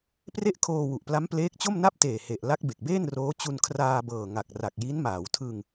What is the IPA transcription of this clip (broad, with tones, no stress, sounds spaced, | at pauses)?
p r e˥˩ ʔ kʰ oː˧ w u˨˩ ʔ p l a˦˥ m p l eː˦˥ k̚ t͡ɕ o˥˩ m n a˥˩ p̚ t eː˨˩ h e˨˩ ʔ l a˦˥ k̚ b e˨˩ k̚ b eː˥˩ n r oː˦˥ t͡ɕ u˧ n kʰ r aː˧ b ɤː˨˩ ŋ a˨˩ k̚ r a˨˩ k̚ j i˦˥ n m aː˩˦ w tʰ ɯ˧ ŋ